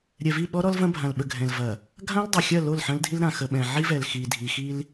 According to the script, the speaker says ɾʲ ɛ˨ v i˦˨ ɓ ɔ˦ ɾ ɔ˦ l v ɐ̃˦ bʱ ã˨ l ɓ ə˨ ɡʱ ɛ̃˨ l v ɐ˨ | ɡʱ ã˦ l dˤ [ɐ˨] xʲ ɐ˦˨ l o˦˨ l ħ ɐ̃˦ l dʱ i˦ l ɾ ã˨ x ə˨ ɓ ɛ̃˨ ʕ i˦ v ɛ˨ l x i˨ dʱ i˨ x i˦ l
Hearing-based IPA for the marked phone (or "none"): ɐ˨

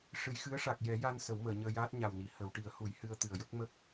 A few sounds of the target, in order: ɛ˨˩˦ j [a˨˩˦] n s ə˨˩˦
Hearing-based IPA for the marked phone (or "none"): a˧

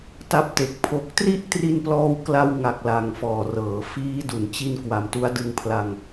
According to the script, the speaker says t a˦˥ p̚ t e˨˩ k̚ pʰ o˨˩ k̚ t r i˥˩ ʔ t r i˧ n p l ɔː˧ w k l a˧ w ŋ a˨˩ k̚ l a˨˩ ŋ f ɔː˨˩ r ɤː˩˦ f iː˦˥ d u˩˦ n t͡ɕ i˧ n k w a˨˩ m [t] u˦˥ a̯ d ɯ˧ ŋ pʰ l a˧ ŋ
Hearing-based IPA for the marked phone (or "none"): t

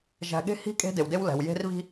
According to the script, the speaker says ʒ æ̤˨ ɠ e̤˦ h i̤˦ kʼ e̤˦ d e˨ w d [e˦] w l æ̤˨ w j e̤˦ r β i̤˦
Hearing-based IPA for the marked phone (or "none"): e˦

